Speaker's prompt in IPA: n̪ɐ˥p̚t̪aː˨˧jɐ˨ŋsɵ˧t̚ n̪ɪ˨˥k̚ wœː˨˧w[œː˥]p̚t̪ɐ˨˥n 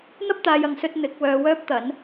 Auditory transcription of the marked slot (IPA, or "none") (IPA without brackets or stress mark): œː˥